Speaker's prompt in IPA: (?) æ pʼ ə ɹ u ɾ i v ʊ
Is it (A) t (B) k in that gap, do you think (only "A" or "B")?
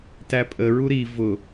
A